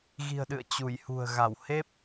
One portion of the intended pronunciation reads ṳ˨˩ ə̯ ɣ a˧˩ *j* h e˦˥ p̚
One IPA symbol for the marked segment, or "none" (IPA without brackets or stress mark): w